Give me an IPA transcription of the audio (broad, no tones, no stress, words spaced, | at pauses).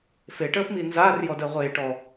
feʈəːf minzaːrjɔ dəːʁʷeːʈɔ